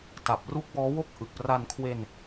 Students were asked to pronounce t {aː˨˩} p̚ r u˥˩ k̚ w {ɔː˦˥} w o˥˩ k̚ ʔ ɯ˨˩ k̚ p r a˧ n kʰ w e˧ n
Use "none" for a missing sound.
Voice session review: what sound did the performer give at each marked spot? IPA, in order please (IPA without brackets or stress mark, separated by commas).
a˨˩, ɔː˦˥